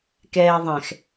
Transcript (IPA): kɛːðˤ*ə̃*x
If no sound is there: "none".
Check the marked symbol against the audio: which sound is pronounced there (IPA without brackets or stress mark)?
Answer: ɛ̃